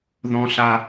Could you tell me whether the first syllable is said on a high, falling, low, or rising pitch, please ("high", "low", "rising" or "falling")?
high